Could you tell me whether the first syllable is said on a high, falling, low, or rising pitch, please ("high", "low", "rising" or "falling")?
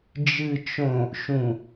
low